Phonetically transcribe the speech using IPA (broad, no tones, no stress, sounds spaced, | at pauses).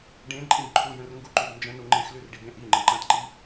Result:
ɖ ẽ ǃʼ ĩ b ǃʰ u j ə̃ r ŋ ɡ u ǃ ʉ b n d͡ʒ ə̃ n u ŋ͡ǃ ẽ x l ʉ r ɖ i b ẽ ʔ i ŋ͡ǃ ə̃ ǃ ã t ǃ i